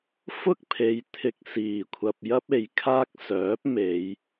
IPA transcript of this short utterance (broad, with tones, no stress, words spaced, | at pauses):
fʊ˥k̚pʰe˨˧j t̪ʰɪ˧k̚siː˨˩ kʷʰɐ˨p̚jɐ˥p̚e˨jkʰaː˥k̚ sœː˨˥p̚me˨˧j